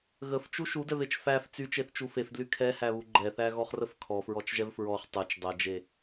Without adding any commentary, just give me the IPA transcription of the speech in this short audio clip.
ɣ ə f t͡ʃ u ʃ u d ɛ v e t͡ʃ f æ f t͡s y t͡ʃ e θ t͡ʃ u f e f d l y kʰ ɛ h æ β u ɡ͡ǃ ɛ θ æ ɣ ɔ χ r ə f kʰ ɔ f ɹ ɔ t͡ʃ ʒ ɛ v f ɹ ɔ χ tˤ e t͡ʃ dˤ ɛ d͡ʒ e

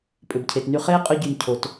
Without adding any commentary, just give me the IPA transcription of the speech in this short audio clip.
pʼ ʏ˨ b cʰ e˨ t n y˧ χ eː˦ qʼ ʊ˧ ɟ y˨ n cʰ o˨ t

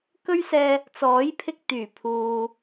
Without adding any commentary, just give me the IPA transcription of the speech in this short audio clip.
k ɵ˥ ɥ s ɛː˧ | t͡s ɔː˨˥ j pʰ ɪ˧ k̚ t̪ yː˨˩ pʰ uː˨

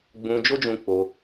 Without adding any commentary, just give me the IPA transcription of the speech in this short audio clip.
ɡ͡b ũ˧ d͡ʒ o˦ d͡ʒ ũ˧ k͡p o˧

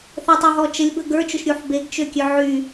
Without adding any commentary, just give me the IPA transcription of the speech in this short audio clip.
θ ə tˤ u ɦ ɔ t͡ʃ ə lʲ b ə ɡ ə˞ t͡ʃ ʊ ʃ ɾʲ u ħ b e ɡ t͡ʃ ø kʲ ø ʕ y

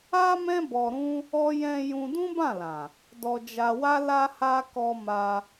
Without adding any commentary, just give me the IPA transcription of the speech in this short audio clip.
a˦ m ɛ̃˦ b ɔ˧ ɾ ũ˦ | ɔ˧ j ɛ̃˧ j ũ˧ d ũ˦ b ã˦˨ l ã˨ | d ɔ˨ d͡ʒ a˨ w a˧ l a˧ h a˧ k ɔ˧ m a˧

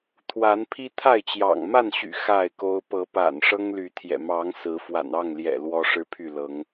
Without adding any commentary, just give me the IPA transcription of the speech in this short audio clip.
t̪ʰ w a˨˦ n pʰ i˦ t̪ʰ a˥˨ ɪ̯ t͡ɕ j ɑ̰˨˩ ŋ m a˥˨ n ɕ y̰˨˩ x a˥˨ ɪ̯ k o˦ ʊ̯ p ɤ˨˦ p a̰˨˩ n ʂ ɤ˦ ŋ l y˨˦ t̪ʰ j ɛ̰˨˩ m ɑ˨˦ ŋ s ɹ̩˨˦ f w a̰˨˩ n ɑ˥˨ ŋ l j ɛ̰˨˩ l w ɔ˦ ʂ ɻ̩˦ pʰ y˥˨ l ɤ˨˦ ŋ

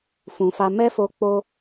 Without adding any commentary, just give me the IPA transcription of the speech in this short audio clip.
f ũ˨ f a˧ m ɛ˦ f o˧ k͡p o˧

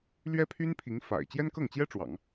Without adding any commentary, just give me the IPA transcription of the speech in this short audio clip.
l ɥ ɛ˥ pʰ y˥ n pʰ i˧˥ ŋ f a̰˨˩ ɪ̯ t͡ɕ j ɛ˥ n k ɤ˥˩ ŋ t͡ɕ j ɛ˥ ʈ͡ʂ w ɑ̰˨˩˦ ŋ

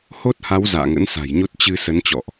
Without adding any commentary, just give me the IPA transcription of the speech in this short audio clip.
h o˦˥ t̚ h a˨˦ w z a̰ː˧˨ ŋ ə̰˧˥ n s a̤˨˩ j ɲ o˦˥ t̚ t͡ɕ ɨ˧ s ə˨˦ n t͡ɕ ɔ̰˧˨ ʔ

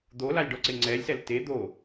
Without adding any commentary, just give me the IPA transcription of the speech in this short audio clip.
d̪ o l a lʲ ɖ ɔ ǀ e ŋ͡ǀ ɛ lʲ s ɛ l t e d̪ o

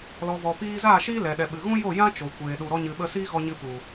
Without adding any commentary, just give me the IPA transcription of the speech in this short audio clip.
l ɔ˨ v ɔ˨ p iː˧ z aː˦˨ ʃ iː˦ l ɛ˨ ɗ ɛ˨ ɓ ɨ˨ ɣ ũ˦ j o˦˨ j ã˦ t͡ʃ o˨ kʷ eː˨ ɗ u˨ ɾ ɔ˧ ɲ ɨ˨ ɓ ə˧ s iː˦ ɣ ɔ˧ ɲ ɨ˧ p u˨

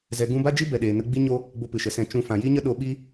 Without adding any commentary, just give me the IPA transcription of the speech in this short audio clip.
z ɛ˧ ɡ ũ˦ b a˦ d͡ʒ i˦ b ɛ˨ ɗ eː˨ n ə˧ ɡ͡b i˦ ɲ o˦ | b o˧ p ɨ˨ ʃ ə˨ s ɛ̃˧ t͡ʃ ũ˧ f ã˨ j i˦ ɲ ə˦ ɗ o˦ ɓ i˦

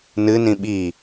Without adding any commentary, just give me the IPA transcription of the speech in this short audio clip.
n ɨ n ĩ ɓ i

